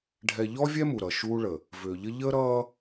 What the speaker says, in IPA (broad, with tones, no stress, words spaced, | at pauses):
ɖʱɛ˨ ʎɔ˦vʲɛ˦ mu˨ ɾʌ˨ʃuː˦ɭə˨ | vʏː˨ʎə˦ ʎəː˦ɾʌː˦